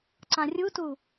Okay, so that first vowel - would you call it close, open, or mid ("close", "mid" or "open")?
open